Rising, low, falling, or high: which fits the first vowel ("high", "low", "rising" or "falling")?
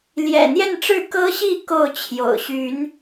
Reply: low